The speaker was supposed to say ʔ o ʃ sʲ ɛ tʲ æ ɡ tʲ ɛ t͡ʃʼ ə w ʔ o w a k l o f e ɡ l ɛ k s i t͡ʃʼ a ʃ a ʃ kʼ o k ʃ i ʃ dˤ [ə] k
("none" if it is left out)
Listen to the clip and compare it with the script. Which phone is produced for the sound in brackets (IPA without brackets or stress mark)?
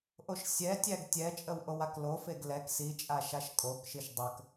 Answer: ə